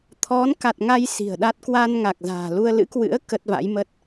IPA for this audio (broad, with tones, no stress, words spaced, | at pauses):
t̪ʰɔ˨˦nka˨˩t̚ŋa˧j si̤˨˩ə̯ɗa˦˥t̚ kwa˧nŋa˨˩k̚za̤ː˨˩lu˧ə̯ lɨ̰˧˥kwɨ̰˧˥ə̯ kə˦˥t̚va̰˧˥jmə˦˥t̚